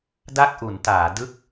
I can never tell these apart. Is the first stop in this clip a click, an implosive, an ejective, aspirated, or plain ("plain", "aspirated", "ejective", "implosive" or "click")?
plain